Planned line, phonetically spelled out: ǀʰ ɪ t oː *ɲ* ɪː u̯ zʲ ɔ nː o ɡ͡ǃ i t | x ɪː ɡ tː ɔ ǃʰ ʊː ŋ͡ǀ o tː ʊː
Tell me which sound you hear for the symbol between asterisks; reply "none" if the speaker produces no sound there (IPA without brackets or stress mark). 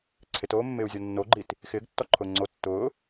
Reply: mː